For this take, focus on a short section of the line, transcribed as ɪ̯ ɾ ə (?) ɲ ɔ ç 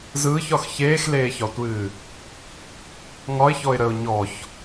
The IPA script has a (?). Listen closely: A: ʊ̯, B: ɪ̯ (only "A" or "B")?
A